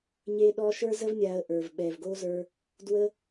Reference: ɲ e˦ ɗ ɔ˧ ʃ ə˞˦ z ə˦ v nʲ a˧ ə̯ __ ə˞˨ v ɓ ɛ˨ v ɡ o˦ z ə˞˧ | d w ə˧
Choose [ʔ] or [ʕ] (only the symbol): ʔ